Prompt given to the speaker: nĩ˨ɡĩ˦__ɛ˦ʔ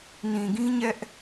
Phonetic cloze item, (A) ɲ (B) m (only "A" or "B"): A